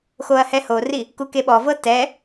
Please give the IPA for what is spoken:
x o ɐ̯ h ɛ h o r i | k u k e ɓ ɔ v ɤ t ɛ

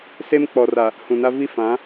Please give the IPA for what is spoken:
s e˦ m k͡p ɔ˨ r a˨ | h ũ˨ n a˦ v i˦ f ã˨˦

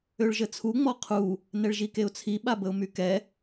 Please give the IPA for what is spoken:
ø ɭ ʒ ə t͡sʰ u ŋ͡m ɔ qʰ u | n ɛ ɭ ʒ i k e ʊ̯ t͡sʰ i ɓ a b ə ʊ̯ m y k ɛ

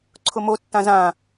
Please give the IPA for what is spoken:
ǀʰ ʊ m o tː ã z ã

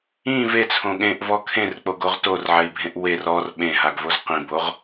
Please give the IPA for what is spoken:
ĩ v e t͡sʰ õ ɠ ẽ ʔ v ɔ kʰ ẽ r k͡p o ɡ o ʁ t o r ʕ ɛ i̯ bʱ ẽ ʔ w e r ɔ r ɓ ẽ ɦ a ɡ v o z q ĩ b o ʁ

